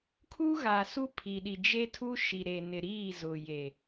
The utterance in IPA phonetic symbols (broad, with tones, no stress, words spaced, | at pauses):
kʰu˦ɣa˨ su˦pʰi˨ɗi˨ d͡ʒe˦tʰu˦ ʃi˨ ɾe˨nɪ˨ɾiː˦˨ zʊ˨je˨